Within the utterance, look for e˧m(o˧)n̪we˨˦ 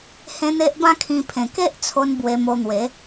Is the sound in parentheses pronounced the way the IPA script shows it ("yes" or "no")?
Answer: yes